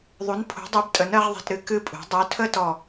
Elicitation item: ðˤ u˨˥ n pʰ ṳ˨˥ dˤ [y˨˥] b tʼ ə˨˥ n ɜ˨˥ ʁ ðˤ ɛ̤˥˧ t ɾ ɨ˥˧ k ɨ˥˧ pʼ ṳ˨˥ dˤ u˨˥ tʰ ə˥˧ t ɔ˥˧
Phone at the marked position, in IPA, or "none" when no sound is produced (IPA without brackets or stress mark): u˨˥